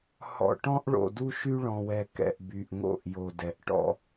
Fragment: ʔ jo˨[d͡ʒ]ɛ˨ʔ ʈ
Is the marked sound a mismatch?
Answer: yes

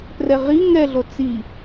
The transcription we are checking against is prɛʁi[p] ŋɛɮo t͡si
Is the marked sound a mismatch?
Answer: yes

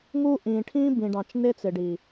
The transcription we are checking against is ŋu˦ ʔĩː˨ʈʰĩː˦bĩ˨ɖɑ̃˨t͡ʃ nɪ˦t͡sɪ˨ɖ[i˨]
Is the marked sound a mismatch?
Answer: no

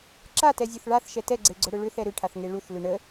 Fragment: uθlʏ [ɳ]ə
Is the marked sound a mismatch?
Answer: no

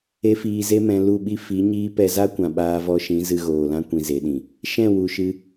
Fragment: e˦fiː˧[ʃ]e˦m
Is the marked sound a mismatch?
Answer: yes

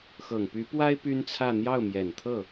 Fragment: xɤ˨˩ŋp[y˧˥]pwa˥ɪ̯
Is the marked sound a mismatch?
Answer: no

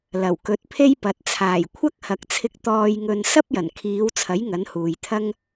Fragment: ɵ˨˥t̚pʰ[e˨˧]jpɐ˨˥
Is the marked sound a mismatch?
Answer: yes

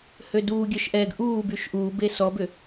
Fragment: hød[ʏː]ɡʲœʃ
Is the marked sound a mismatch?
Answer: yes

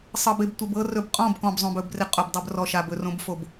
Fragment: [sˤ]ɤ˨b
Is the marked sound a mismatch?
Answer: no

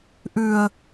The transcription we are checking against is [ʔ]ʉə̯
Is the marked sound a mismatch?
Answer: no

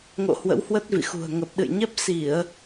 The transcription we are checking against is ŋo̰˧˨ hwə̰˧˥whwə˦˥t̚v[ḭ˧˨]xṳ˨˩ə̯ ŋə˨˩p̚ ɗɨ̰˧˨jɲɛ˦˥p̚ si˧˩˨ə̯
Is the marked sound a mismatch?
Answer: no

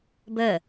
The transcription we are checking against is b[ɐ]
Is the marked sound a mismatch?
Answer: yes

